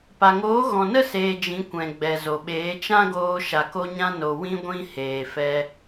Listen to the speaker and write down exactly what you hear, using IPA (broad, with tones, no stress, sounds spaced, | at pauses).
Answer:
p a˨ ŋ oː˨˦ ɣ ɔ̃˨ n ə˦ s eː˧ d͡ʒ ĩ˨˦ kʷ ɛ̃˨ ɡ͡b ɛ˨ z o˨ ɓ eː˨˦ t͡ʃ ã˦ ɡ oː˧ ʃ a˨ k o˧ ɲ ã˧ n o˨ w ĩ˧ ɡʷ ĩ˧ h eː˨ f ɛ˧